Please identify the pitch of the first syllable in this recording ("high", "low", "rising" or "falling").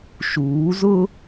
rising